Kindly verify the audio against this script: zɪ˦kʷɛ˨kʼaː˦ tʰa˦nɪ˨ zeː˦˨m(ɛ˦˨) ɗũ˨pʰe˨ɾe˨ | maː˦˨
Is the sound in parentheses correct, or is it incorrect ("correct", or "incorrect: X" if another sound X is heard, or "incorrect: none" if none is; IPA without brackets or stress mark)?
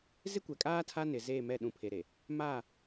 correct